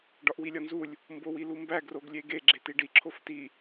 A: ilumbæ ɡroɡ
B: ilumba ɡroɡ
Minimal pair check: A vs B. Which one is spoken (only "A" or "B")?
A